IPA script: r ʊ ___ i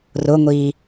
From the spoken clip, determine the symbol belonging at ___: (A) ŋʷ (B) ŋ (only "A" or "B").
A